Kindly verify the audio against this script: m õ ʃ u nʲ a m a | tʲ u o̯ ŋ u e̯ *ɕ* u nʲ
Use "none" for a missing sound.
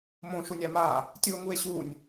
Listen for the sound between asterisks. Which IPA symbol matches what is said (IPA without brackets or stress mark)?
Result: ɕ